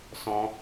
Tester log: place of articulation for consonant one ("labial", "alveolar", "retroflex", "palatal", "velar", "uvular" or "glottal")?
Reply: alveolar